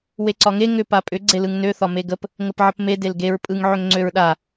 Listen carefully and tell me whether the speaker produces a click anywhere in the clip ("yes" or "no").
yes